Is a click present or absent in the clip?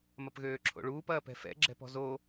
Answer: present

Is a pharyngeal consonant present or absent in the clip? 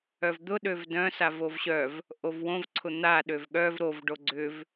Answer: absent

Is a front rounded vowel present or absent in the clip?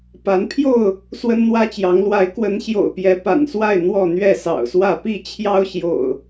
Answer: absent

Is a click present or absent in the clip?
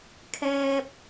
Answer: absent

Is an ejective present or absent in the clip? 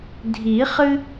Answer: absent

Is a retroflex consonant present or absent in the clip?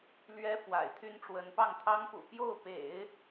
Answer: present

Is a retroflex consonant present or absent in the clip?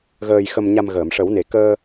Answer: present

